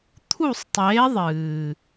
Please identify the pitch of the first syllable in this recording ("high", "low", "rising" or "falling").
falling